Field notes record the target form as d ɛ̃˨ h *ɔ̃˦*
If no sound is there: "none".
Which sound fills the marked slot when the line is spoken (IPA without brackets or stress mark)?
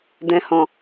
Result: ɔ̃˨